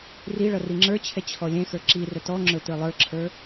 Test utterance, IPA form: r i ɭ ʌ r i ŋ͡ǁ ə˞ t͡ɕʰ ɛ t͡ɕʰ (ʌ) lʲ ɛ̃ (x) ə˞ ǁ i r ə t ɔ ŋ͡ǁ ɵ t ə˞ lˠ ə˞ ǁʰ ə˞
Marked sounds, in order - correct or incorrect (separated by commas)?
incorrect, correct